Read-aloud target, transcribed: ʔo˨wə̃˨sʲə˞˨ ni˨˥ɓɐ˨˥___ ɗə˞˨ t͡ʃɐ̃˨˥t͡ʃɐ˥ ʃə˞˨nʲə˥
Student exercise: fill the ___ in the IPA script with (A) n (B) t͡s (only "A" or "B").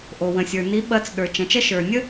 B